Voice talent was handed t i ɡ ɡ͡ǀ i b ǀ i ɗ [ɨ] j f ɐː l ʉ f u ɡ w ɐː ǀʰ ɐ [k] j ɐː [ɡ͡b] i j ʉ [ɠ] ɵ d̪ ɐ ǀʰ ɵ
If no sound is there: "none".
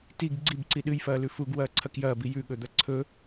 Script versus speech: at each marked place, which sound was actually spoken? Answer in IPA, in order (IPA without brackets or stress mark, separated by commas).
ɨ, k, b, ɠ